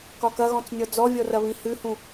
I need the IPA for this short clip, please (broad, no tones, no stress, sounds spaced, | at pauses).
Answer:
k ɒ k ɐ ɣ ɔ̃ t͡s nʲ ɔ d͡z ɔ vʲ ɔ r ɐ β ĩ h ʉ h ũ